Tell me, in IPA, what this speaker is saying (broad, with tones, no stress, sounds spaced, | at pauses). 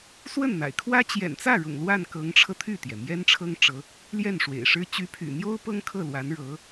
s w ə˥˩ n n̪ a̰˨˩ ɪ̯ kʰ w ä˥ t͡ɕ j ɛ̰˨˩ n t͡s ä˥˩ ɻ ʊ̰˨˩ ŋ l w a˥˩ n k ɤ˧˥ ŋ ʈ͡ʂʰ ɤ˧ t̪ʰ y˥˩ t̪ j ɛ˩ m j ɛ˥ n ʈ͡ʂʰ ɤ˥ ŋ ʈ͡ʂ ɤ˧˥ | l j ɛ˥˩ n ʂ w ḛ˨˩ ɪ̯ ʂ ɻ̩˥ t͡ɕ y˧˥ pʰ y̰˨˩ n̪ j o˥ ʊ̯ p ɤ˥ ŋ kʰ ɤ˥˩ l w a˧˥ n ɻ ɤ˧˥